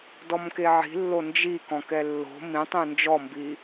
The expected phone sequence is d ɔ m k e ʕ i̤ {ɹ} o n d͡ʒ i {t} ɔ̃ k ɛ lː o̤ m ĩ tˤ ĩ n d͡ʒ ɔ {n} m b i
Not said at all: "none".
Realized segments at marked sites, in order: lː, k, none

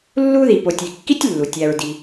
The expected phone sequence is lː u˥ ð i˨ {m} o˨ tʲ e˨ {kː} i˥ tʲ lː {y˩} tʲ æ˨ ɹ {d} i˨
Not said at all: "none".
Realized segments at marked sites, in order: p, kː, u˩, d

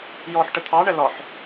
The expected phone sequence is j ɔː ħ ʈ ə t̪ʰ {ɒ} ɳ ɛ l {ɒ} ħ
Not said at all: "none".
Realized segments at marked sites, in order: ɑ, ɒ

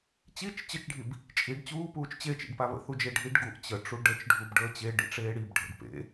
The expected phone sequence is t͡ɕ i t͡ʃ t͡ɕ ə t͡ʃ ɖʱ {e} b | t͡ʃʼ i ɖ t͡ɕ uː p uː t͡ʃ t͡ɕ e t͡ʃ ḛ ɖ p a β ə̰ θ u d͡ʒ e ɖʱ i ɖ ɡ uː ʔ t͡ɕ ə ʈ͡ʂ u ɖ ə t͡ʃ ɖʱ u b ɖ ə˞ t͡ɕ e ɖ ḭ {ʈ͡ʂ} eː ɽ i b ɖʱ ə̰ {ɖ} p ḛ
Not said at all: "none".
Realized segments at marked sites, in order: i, ʈ͡ʂ, ɖ

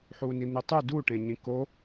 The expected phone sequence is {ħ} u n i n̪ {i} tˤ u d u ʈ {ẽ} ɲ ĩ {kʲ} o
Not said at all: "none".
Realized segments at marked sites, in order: ħ, i, ẽ, k

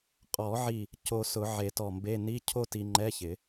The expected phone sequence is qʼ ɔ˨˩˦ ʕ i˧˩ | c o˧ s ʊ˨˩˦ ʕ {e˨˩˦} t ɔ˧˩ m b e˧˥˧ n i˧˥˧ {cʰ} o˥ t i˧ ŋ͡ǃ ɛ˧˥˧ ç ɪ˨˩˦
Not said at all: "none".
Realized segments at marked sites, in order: e˨˩˦, cʰ

